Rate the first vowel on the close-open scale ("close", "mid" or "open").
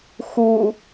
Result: close